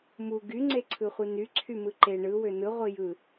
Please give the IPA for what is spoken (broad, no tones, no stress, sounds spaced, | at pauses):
m u ɡ y ŋ͡ǀ e ǀʰ ɯ χʷ i n y ǀʰ y m ɯ ǃ e ɳ ɯ w ø n ɯ ʁʷ i j ɯ